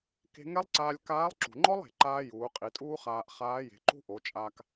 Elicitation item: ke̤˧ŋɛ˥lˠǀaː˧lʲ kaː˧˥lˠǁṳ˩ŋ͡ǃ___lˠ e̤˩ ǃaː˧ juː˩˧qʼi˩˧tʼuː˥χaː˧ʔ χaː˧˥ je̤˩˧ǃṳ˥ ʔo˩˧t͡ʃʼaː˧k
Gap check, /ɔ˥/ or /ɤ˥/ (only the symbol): ɔ˥